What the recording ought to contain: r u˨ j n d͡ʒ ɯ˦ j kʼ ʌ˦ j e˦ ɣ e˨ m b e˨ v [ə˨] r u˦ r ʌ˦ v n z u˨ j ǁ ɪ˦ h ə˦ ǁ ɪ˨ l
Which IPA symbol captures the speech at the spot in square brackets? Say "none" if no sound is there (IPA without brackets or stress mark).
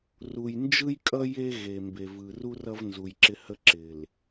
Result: ɯ˨